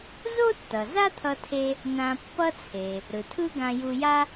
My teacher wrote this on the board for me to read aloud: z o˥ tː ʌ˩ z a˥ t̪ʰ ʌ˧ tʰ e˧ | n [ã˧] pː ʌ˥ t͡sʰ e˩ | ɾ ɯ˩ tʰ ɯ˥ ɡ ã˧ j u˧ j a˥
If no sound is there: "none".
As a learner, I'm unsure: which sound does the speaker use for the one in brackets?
ã˧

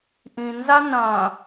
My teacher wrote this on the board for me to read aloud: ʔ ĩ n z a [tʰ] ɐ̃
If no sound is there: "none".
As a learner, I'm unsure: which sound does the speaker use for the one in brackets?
n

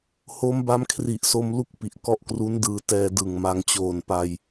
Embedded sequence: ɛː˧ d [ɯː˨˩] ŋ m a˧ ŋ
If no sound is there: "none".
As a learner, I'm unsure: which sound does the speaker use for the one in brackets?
ɯ˨˩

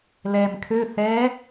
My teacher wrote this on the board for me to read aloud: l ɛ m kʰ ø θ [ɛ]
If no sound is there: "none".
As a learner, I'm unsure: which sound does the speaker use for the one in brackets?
ɛ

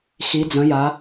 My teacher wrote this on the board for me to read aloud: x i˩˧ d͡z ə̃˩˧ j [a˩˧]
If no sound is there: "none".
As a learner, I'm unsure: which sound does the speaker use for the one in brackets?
a˩˧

